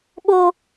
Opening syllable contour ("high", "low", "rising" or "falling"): high